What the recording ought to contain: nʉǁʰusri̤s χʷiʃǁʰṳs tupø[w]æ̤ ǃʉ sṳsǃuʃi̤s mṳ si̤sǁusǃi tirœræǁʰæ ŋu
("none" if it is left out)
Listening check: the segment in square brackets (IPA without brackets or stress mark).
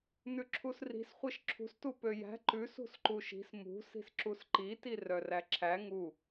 j